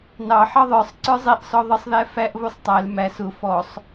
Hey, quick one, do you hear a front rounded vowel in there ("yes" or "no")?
no